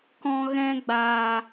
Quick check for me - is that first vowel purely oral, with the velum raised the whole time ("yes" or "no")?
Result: no